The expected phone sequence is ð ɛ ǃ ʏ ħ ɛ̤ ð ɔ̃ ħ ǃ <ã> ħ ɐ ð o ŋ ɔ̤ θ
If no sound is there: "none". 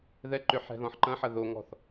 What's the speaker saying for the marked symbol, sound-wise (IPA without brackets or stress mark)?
ɐ̃